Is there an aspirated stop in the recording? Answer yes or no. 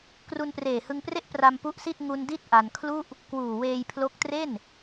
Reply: yes